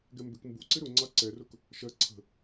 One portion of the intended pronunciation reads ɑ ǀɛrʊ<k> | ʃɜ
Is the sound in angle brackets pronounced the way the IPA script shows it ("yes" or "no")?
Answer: yes